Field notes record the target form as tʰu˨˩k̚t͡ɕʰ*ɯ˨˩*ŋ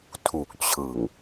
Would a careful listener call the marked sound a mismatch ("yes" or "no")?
no